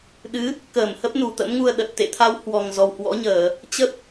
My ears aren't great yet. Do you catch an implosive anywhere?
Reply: yes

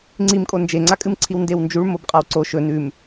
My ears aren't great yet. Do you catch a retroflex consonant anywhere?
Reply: yes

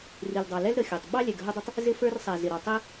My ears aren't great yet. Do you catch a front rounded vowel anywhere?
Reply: no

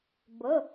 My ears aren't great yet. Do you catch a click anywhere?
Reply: no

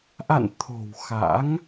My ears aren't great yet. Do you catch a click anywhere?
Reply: no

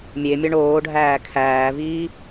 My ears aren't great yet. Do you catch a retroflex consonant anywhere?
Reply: yes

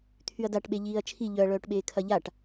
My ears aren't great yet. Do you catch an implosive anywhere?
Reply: yes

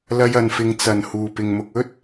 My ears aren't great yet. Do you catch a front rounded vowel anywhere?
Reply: no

